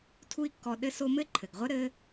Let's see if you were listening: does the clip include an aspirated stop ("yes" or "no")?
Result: yes